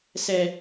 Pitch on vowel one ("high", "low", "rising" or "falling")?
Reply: low